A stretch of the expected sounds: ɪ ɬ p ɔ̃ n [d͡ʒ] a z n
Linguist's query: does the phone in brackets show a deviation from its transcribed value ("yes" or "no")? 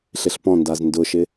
yes